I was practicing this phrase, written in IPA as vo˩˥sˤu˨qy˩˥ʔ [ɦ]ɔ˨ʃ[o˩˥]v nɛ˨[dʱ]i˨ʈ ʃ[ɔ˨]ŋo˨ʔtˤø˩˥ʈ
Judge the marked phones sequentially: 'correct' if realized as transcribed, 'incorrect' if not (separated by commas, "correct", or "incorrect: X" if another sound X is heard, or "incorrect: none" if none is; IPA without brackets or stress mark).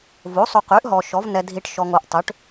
correct, incorrect: ɔ˩˥, correct, correct